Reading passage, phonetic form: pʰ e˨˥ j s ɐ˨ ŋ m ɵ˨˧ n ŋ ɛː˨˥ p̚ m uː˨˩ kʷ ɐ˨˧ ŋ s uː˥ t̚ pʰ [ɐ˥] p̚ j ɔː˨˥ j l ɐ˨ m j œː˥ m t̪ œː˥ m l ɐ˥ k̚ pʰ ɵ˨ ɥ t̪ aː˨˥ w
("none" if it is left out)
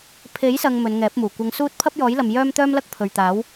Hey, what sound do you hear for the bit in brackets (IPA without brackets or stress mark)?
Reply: ɐ˥